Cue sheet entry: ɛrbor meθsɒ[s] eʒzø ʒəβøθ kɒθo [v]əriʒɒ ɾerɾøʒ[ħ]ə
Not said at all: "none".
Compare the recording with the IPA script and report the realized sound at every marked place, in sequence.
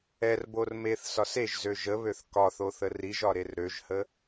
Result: s, θ, h

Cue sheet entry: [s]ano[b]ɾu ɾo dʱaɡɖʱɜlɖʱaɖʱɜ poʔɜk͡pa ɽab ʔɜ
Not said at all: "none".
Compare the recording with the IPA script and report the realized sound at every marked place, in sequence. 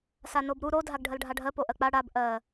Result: s, b

